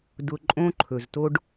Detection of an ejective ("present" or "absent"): present